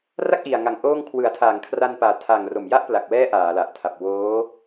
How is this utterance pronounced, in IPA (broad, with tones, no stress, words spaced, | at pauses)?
ra˥˩k̚ʔi˨˩a̯ŋa˨˩ŋ ʔoː˥˩ŋ kʰwɯ˩˦a̯tʰaː˩˦ŋkʰra˧npaː˨˩ tʰa˨˩ŋ ro˨˩mja˥˩ʔpla˨˩k̚wɛː˦˥ ʔaː˩˦la˨˩ʔtʰa˨˩p̚ woː˦˥